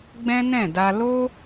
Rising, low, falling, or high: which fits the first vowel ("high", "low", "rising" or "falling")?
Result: high